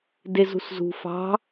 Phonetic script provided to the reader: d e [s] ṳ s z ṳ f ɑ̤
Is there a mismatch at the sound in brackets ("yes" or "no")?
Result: yes